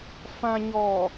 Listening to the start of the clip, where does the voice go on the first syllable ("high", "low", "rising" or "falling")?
low